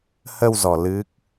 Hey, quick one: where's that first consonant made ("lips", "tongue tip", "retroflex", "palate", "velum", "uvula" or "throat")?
throat